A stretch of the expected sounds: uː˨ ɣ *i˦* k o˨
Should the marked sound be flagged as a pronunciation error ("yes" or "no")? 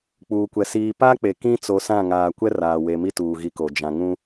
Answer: yes